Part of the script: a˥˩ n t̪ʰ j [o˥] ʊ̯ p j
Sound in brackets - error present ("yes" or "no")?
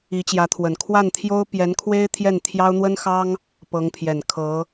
no